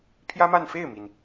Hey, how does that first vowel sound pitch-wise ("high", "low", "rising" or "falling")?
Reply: high